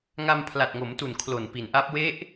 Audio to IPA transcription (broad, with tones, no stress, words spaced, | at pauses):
ŋa˧mpʰla˨˩t̚ŋo˩˦mtu˨˩n kʰlo˨˩npi˨˩nʔaː˦˥p̚ we˦˥ʔ